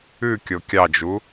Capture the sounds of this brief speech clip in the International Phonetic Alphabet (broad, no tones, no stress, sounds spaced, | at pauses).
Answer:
ʉ kʲ o kʲ ɑ d͡ʒ u